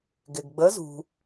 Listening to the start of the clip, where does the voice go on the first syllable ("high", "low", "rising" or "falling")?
low